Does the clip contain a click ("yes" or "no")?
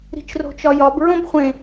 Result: no